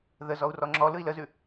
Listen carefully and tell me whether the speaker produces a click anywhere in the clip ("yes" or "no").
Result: yes